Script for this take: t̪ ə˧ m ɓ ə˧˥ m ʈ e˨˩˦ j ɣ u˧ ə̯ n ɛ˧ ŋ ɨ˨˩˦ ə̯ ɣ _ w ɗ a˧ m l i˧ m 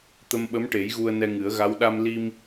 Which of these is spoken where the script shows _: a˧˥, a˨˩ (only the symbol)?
a˧˥